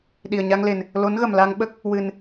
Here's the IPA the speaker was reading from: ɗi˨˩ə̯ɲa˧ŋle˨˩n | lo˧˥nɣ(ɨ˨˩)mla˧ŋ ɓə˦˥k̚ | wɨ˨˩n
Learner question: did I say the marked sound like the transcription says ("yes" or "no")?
no